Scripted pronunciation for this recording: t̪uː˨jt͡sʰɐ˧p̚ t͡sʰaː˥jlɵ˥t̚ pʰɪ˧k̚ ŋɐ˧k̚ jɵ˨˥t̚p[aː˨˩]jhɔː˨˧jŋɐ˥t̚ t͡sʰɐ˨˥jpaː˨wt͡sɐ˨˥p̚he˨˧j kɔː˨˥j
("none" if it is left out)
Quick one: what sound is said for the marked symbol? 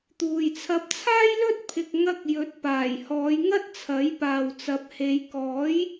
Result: aː˨˩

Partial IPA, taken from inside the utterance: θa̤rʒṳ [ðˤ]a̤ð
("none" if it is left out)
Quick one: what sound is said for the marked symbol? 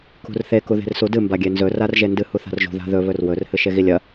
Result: ð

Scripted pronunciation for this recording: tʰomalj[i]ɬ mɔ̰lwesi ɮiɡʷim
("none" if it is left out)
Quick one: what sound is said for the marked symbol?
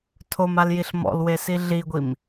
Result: i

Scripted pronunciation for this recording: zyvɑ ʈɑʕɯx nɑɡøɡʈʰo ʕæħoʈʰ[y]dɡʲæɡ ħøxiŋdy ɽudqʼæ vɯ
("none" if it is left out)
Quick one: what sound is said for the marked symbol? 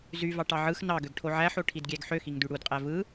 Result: i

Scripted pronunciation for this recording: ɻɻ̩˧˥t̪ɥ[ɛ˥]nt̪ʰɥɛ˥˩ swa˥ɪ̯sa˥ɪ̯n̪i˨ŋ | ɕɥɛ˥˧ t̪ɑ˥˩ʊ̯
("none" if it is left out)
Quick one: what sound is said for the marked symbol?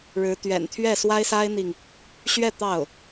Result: ɛ̰˨˩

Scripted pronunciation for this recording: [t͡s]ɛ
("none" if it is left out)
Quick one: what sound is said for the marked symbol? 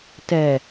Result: t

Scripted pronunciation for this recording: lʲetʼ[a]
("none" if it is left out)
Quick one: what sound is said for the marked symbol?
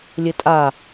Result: a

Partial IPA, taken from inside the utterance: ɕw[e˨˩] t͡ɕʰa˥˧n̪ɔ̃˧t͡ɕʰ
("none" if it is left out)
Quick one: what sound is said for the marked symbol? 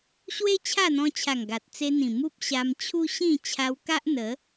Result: e˦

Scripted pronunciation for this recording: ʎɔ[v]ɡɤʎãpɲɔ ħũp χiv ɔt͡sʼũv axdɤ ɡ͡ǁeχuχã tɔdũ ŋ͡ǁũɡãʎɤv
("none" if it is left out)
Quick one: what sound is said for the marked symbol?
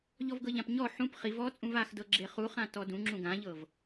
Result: v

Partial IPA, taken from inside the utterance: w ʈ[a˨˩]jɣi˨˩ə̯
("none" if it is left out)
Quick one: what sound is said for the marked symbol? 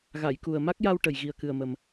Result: ə˨˩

